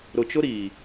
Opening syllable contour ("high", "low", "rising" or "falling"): low